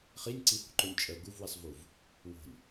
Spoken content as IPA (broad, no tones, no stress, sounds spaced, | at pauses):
χ i nʲ ǀ i h ṳ ǃ o nʲ t͡ʃʼ ə ɡ u v w i sˤ v u v | w o̤ nʲ